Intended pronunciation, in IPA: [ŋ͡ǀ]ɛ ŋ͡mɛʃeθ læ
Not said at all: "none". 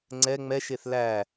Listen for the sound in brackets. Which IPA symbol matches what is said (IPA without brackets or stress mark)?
ŋ͡ǀ